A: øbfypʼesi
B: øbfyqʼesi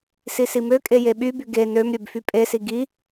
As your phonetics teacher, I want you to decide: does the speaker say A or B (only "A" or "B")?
A